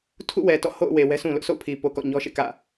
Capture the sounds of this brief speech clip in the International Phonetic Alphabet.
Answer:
tʰṵ˦˨wɛ˨ tɔ̰˦˨ ho̰˦˨ʊ̯we˨ wɛ˦ sũ˨lʊ˦ʔso̰˦˨ʊ̯ pʰi˨po˨ kɔ̰˦˨ɲɔ˦ʃḛ˦˨ kä̰˦˨

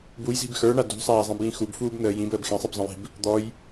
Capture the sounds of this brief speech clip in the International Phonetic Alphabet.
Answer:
bujzi̤b xə˞ɳa dṳsˤaːzˤĩbjĩ xubfuːbnəː jĩbəːb xĩsˤɨbzˤə̃ji̤b | d̪ɔj

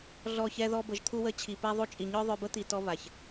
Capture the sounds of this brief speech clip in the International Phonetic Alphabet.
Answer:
ɮɔ˦˨çɛ˦ ðɔ˦bə˧ʒt̪ʰu˦wə˦˨ t͡ɕʰi˨pɛ˧ðˤu˧t͡ʃʼi˨ ɲœ˦ðˤø˧bə˦ t̪i˨ tɔ˦ βa˨ç

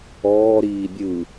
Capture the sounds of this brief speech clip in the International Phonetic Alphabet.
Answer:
ɔːɾiː bʲɯ

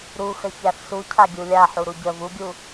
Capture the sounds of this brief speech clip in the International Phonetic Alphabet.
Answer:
ɾuxə çæfsu cʰaɡʲulʲa ħuɾuɟə vuɡʲu

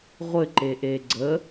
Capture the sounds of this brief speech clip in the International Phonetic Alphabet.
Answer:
ʁʷɘǃeʔe ɡ͡ǀə

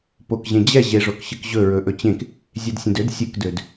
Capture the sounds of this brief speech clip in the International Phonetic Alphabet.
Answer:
pokʑẽ d͡ʑɛ ʑeʐokɕɨk ʑɵ ɹɵʔɵt͡ɕẽk | zʲedsʲẽdød sʲɨkdød

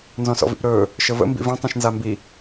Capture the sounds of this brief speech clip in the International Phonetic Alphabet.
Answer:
nzɔ̃sɔ̰vḭpɾɵː | ʃəvə̰ mbḭvĩ tˤĩʃnzambi

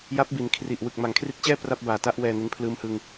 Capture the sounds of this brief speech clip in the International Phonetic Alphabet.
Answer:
ja˦˥p̚bi˩˦nkʰri˨˩ʔ wɯ˨˩k̚ma˩˦ŋkʰri˦˥t̚t͡ɕɛː˥˩ pra˥˩p̚baː˨˩ta˥˩ʔwɛː˧ ne˦˥npʰlɯː˦˥mhɯ˧ŋ

